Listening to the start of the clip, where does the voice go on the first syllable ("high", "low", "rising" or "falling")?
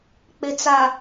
low